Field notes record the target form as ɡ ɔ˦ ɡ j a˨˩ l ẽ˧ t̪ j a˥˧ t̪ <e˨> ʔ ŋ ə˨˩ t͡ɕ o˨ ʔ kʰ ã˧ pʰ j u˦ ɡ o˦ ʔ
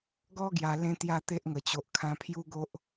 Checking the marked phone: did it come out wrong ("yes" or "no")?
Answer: yes